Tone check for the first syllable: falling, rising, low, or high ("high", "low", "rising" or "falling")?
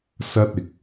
high